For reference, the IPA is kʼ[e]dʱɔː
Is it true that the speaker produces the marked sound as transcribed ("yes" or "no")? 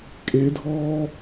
yes